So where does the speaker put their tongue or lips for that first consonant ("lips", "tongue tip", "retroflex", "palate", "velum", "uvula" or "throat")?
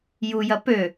palate